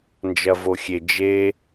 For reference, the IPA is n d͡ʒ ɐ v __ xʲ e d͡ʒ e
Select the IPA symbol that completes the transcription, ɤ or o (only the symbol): o